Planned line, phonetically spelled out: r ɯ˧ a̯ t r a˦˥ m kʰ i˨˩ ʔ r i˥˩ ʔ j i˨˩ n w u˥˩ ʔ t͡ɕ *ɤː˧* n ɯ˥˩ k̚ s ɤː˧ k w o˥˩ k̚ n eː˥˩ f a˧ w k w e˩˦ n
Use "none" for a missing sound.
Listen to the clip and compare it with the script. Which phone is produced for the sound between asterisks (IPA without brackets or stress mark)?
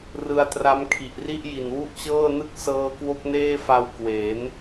ɤː˥˩